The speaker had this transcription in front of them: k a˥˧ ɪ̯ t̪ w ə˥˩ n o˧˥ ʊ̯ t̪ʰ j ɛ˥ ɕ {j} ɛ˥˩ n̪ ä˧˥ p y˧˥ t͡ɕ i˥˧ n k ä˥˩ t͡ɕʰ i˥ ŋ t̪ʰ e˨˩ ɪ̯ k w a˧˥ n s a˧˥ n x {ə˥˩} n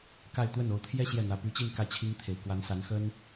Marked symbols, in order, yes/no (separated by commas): yes, no